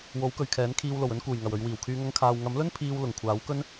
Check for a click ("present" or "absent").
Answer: absent